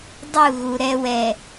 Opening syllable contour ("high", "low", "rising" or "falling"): falling